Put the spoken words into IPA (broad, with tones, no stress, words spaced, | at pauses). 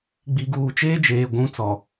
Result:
ɡ͡bi˨ɡuː˨t͡ʃeː˦d͡ʒeː˨ ɡʷũ˨˦ t͡sɔ˨